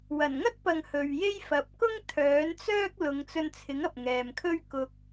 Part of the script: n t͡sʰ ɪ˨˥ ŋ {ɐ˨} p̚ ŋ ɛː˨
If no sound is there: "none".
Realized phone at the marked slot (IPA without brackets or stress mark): ɐ˨